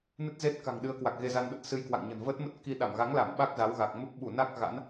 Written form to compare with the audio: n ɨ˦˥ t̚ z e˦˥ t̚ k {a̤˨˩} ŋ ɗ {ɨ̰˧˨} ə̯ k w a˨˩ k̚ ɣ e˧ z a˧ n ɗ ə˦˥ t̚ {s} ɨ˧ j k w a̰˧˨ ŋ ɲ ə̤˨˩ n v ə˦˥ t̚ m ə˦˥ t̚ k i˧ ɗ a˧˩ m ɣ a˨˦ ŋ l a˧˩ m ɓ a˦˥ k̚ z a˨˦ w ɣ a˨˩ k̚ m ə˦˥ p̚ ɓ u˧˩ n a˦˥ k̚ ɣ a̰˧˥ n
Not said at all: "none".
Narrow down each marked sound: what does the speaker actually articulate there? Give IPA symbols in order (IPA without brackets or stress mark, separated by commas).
a̤˨˩, ɨ˨˦, s